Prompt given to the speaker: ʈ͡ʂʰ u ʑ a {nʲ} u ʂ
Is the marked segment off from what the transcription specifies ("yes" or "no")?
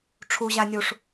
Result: no